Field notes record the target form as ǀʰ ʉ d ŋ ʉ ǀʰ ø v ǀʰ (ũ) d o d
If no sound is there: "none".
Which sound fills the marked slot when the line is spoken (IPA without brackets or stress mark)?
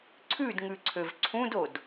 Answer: ũ